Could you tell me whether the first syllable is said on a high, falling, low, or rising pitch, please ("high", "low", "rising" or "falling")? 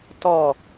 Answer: falling